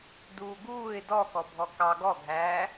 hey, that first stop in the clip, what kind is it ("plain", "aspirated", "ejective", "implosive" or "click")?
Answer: plain